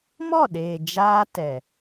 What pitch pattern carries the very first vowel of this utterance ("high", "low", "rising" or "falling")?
falling